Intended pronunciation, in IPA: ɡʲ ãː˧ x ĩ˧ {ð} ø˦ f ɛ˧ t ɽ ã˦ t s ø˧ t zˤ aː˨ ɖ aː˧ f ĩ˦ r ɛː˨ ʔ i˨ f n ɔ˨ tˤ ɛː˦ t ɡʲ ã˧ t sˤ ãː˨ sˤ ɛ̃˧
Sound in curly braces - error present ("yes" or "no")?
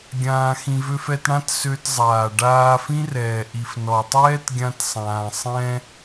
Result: yes